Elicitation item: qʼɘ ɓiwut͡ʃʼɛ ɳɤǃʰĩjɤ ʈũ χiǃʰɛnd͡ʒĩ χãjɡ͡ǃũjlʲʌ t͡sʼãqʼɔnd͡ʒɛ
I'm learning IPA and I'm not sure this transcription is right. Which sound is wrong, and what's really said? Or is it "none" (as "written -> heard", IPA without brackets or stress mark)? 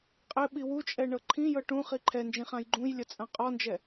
none